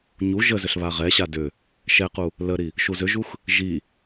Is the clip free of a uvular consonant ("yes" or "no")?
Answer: no